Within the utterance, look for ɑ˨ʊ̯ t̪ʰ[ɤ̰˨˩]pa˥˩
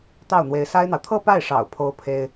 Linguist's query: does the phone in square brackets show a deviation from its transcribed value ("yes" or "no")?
yes